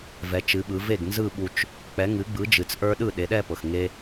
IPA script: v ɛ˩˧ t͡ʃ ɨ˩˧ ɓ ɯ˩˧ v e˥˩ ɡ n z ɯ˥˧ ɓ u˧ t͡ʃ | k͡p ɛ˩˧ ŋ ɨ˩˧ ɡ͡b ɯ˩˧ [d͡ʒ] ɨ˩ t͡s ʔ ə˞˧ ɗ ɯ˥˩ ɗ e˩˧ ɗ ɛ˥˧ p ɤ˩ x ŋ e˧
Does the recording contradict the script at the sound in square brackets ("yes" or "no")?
no